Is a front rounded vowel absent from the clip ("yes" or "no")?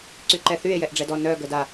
no